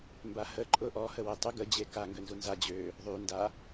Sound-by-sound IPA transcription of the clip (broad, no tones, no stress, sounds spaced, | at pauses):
m b a h ə ǃʼ ʊ ʔ ɔ h ə w e tˤ y ɡ ə d͡ʑ e k a ŋ ɡ ø n z u n z a d͡ʑ ø | ðˤ y n d a